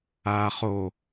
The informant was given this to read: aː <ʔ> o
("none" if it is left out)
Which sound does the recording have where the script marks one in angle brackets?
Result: χ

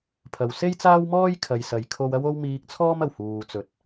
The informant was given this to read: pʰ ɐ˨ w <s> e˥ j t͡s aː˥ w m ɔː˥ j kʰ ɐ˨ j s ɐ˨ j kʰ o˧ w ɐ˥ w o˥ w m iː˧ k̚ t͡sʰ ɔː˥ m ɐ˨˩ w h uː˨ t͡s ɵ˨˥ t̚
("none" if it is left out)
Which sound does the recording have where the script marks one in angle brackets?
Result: s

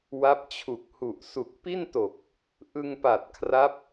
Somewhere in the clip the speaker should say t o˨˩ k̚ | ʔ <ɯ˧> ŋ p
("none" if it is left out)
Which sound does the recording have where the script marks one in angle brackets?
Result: ɯ˧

